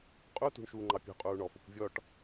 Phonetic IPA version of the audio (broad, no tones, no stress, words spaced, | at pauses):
qʼutṳɳ ʃuːŋ͡ǃɑpʲṳ qʼuːɳɔfʊkʷvʲɔʈ